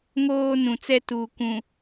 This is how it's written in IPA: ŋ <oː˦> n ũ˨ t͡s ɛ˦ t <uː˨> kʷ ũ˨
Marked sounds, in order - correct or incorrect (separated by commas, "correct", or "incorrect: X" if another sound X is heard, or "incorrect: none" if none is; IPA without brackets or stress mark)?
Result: correct, correct